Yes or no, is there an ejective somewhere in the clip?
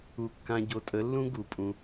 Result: yes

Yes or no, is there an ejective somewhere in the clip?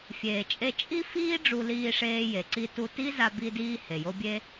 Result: yes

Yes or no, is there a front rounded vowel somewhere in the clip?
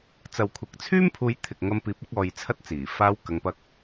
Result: yes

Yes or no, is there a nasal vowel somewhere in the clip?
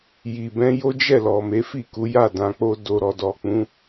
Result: yes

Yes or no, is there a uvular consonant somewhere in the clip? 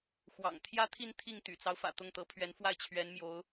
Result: no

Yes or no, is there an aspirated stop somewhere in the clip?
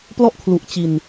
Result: yes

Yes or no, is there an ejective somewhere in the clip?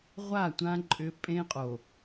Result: yes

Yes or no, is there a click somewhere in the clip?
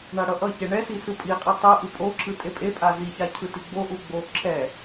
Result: yes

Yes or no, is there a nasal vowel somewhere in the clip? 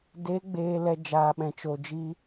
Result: yes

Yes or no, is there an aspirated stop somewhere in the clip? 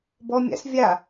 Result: no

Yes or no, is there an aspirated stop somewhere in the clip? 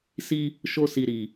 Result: no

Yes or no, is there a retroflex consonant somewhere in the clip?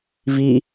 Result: no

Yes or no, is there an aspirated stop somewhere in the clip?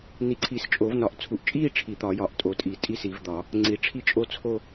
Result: yes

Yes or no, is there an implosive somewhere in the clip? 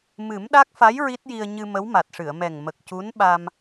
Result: yes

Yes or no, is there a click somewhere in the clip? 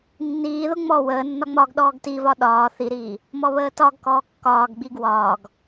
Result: no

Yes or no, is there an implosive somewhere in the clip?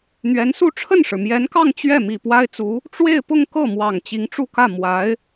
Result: no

